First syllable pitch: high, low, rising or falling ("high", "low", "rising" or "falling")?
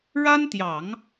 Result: high